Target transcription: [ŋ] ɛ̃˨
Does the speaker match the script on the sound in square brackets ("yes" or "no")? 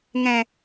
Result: yes